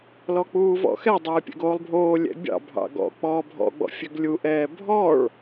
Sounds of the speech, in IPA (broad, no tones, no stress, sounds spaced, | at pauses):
l ɔ k͡p uː v ɔ̰ x ɛ dˤ ɛː pʲ ɛ̰ ɡ oː lˠ bʱ oː lʲ ɛ̰ bʲ ɑ̰ bʱ ɑ̰ ɡ ɔ̰ k͡p ɔː bʱ ɔ̰ ɡ͡b ɔ̰ fʲ ø ɡ lʲ u ʔ ɛː bʱ ɔ ɭ